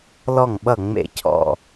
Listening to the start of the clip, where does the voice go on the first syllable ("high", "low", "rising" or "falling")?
falling